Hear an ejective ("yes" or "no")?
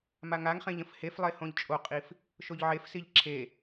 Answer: yes